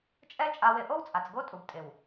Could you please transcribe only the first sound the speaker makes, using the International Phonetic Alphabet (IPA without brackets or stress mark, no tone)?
t͡ʃʼ